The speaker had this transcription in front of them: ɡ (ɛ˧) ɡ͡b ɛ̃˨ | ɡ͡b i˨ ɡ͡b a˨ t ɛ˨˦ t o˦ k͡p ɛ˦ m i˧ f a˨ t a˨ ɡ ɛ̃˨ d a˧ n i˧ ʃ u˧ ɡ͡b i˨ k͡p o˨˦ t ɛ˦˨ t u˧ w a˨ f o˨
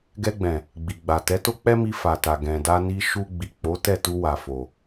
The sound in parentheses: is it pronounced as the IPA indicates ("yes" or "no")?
yes